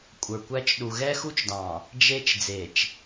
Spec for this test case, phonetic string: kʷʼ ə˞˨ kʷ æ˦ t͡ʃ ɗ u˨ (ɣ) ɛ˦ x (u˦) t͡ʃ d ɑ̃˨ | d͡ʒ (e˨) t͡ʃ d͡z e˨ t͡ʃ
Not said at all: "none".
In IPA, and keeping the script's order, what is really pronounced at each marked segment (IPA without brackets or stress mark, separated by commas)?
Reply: ɣ, u˦, e˦